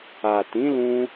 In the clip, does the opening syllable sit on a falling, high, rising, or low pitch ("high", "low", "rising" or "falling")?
low